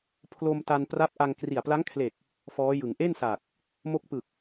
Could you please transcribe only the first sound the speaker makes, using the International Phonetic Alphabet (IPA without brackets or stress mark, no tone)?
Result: pʰ